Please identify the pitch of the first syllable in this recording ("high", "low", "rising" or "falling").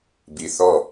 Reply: low